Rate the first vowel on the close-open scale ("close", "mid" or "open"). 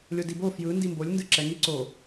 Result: mid